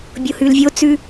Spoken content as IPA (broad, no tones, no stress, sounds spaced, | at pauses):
bʲ o h ʉ l vʲ o t͡s ʉ